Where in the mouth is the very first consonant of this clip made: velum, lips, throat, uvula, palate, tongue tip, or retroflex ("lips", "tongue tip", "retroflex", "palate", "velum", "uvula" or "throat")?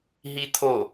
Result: throat